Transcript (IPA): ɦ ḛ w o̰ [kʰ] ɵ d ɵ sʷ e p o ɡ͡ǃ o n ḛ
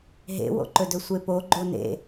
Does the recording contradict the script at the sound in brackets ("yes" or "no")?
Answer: yes